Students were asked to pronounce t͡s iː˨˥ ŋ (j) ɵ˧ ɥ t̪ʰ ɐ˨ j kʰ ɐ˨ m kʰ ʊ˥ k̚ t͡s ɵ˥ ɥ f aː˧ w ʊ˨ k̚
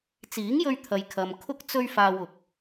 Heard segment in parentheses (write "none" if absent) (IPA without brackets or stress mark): j